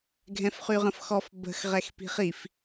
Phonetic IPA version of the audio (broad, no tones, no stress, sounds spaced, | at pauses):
ɡʱ ɛ̃ f χ y ʁ ə̃ f x ɔ f b ə̤ x ʁ ɛ x p i̤ χ i f